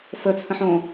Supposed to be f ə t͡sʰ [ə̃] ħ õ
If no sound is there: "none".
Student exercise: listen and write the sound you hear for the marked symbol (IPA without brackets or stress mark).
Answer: ə̃